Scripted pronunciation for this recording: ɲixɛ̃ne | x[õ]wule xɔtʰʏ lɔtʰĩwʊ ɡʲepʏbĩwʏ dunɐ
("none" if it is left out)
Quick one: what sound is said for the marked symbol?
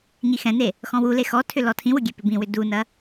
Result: ɔ̃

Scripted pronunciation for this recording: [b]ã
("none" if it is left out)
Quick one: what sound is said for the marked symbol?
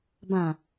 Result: b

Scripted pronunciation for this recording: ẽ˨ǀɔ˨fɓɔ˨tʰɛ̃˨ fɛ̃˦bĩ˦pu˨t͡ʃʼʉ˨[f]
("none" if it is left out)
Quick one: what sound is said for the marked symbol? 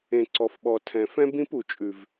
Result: v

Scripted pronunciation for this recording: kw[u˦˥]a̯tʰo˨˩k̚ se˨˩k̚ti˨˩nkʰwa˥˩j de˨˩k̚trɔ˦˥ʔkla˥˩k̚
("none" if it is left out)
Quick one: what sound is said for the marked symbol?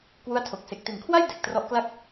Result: u˦˥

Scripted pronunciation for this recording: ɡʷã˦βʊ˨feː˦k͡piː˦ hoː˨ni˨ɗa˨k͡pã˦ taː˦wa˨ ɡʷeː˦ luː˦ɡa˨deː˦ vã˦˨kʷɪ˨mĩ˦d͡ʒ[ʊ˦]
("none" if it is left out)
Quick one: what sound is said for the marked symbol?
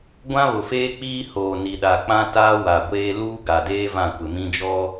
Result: ɔ˦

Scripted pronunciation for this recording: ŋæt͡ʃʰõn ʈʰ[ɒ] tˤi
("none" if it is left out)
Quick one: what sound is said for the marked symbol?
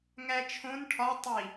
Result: ɒ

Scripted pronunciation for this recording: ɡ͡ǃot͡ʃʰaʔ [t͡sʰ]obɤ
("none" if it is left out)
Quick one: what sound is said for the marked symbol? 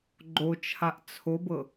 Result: t͡sʰ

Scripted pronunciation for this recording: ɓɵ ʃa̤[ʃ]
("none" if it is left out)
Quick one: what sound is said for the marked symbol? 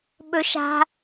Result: none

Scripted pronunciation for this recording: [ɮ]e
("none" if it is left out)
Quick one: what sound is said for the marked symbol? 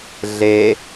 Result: ɮ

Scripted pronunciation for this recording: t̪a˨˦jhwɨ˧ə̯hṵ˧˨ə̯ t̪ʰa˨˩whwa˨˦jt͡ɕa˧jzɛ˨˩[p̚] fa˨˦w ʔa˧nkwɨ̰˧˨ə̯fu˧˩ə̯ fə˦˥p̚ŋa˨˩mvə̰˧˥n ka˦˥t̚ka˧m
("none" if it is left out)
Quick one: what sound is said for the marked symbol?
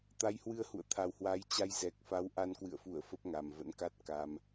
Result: k̚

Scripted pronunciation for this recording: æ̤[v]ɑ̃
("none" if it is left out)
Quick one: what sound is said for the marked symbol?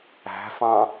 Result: f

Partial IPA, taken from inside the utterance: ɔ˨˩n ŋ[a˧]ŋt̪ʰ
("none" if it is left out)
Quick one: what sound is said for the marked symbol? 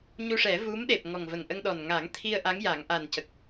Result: a˨˩˦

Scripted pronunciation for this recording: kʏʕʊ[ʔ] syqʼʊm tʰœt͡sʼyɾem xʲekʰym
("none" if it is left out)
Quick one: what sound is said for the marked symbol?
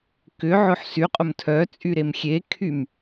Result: ħ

